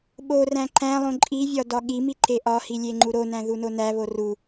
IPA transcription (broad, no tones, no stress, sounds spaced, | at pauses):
ɓ o r æ̃ ǃ æ̃ lˠ õ ǃʼ i vʲ ɒ d ɒ ɠ i m i ǃ e ʔ ɒ h i lʲ e ŋ͡ǃ u ɾ o n æ̃ ð u n o n æ β o r u